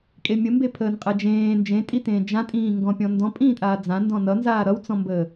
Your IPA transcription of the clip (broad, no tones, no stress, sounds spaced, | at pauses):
kʼ e mʲ ə m b e pʰ əː n qʼ ɛ d͡ʒ ẽː n d͡ʒ ẽ tʼ i t ẽː d͡ʒ ã tʼ ĩː ŋ ɡ ɔ̃ pʲ ɔ̃ n d ɔ̃ pʼ ĩː tʼ aː d͡z ã n d ɔ̃ n ʌ n z aː ɾ ʌ w t͡s ɔ̃ m b əː